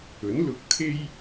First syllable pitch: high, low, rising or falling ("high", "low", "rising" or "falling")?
rising